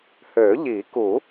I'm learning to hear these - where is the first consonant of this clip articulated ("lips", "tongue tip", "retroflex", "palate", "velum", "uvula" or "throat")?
throat